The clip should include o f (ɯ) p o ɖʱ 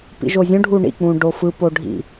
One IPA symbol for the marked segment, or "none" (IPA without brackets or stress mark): ɯ